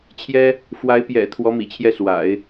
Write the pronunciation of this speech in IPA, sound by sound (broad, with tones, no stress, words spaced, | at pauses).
t͡ɕʰjɛ˥ | fwa˧˥ɪ̯pjɛ̰˨˩ t̪ʰwɔ˧˥mḭ˨˩t͡ɕʰjɛ˥˩swa̰˨˩˦ɪ̯